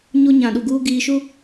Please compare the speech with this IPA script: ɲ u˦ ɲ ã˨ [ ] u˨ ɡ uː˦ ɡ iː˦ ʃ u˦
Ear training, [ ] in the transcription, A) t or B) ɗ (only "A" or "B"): B